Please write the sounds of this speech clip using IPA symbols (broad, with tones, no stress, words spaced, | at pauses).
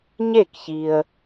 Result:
ɲe˥˩kçi˨ə̯